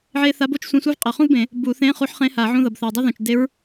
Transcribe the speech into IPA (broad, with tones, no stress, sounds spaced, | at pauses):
ʕ e˥ θ a˧˥ b o˥ t͡ʃ sʷ ẽ˧˥˧ sʷ ɯ˥ v qʼ ʌ˨˩˦ χ ũ˥ v b ẽ˨˩˦ | b u˨˩˦ θ ẽ˧˥˧ χ u˧˥ ħ χ ẽ˧˥ h a˨˩˦ ʕ ũ˧˥˧ ð ʌ˩ b θ ɛ˩ dˤ a˥ ð ũ˩ t͡ʃ d e˧˥ ɹ